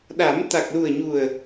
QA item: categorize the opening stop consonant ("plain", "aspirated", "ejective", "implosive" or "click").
implosive